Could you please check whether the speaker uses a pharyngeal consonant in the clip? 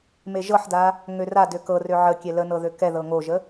yes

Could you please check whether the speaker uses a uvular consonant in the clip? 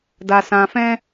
no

